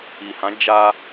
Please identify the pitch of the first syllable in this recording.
low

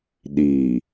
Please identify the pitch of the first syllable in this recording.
low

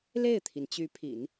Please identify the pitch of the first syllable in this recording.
falling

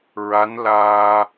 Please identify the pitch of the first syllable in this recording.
rising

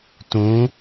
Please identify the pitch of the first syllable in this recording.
rising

